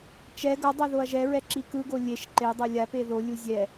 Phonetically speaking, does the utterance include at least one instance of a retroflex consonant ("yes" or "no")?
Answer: no